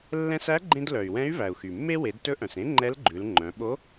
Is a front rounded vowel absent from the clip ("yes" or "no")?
no